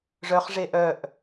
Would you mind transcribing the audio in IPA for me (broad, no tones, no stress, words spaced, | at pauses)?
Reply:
ʐœχʐe ʔœʔ